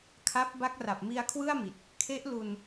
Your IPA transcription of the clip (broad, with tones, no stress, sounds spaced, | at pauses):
kʰ a˦˥ p̚ b a˦˥ k̚ r a˨˩ p̚ m i˧ a̯ kʰ w ɯ˥˩ a̯ m i˨˩ t̚ | kʰ e˦˥ ʔ l u˧ n